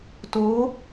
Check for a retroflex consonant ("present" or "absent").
absent